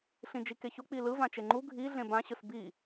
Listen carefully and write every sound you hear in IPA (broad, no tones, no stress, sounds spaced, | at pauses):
ɬ ĩ d͡ʒ i k e ç o k͡p i l ɯ v ã t͡ʃ e ŋ͡ǃ u ɡʱ i ɮ ẽ b ã ɕ ɯ s b i